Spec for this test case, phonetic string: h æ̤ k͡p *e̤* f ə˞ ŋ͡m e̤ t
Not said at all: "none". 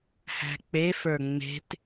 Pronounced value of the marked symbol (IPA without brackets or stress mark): e